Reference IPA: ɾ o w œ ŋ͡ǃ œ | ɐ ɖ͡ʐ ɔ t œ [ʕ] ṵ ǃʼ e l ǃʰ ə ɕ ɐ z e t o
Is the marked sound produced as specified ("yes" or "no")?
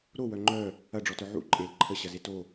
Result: yes